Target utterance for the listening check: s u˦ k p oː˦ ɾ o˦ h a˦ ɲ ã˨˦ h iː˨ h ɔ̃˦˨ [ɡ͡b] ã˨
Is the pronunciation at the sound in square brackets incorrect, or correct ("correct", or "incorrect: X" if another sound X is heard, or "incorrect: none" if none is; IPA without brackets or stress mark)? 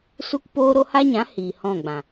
correct